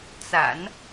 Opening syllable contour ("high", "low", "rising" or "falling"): low